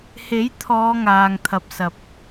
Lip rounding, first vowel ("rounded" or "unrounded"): unrounded